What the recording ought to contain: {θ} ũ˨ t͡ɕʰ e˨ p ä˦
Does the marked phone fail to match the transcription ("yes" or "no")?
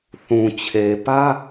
no